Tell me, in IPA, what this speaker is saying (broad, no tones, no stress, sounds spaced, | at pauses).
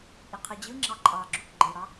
ʔ i qʰ ɯ d͡ʑ ɯ ŋ͡ǁ ɑ ǃʼ ɑ ɡ͡ǁ u k ɡ͡ǃ e ɽ ɑ